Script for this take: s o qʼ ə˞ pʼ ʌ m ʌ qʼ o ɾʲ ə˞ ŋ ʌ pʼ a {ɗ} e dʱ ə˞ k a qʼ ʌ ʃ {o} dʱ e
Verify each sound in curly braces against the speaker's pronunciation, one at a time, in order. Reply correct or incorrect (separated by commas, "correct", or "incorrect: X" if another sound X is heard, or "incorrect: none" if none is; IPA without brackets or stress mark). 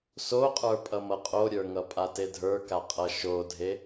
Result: incorrect: t, correct